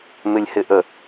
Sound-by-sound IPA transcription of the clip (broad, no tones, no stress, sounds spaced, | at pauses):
m ɪ lʲ h ɪ ʔ ə